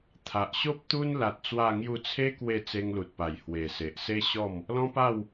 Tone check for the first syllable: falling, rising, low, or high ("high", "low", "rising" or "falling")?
low